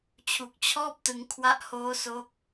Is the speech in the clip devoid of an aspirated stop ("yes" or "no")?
no